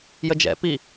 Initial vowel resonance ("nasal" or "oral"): oral